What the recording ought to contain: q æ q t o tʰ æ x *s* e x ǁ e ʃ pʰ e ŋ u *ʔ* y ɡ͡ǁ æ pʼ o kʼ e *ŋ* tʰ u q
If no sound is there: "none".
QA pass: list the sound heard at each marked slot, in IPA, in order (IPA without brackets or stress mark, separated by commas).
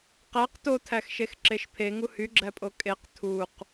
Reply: ʃ, h, q